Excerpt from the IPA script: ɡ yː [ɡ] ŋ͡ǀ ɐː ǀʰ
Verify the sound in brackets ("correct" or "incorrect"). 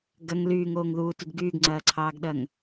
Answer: correct